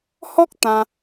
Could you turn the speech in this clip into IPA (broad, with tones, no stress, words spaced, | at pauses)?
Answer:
hɔ˦k̚ t̪ã˧